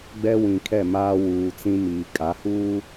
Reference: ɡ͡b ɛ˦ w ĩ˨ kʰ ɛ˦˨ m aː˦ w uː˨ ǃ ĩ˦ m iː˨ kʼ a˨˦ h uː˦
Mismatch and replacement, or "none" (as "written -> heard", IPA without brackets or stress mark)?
ǃ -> t͡s